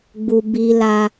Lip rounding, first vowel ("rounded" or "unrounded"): rounded